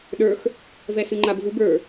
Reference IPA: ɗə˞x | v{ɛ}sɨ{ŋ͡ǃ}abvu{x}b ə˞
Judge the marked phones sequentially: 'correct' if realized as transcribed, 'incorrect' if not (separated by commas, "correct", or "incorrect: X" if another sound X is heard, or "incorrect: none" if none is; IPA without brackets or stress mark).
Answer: correct, correct, incorrect: none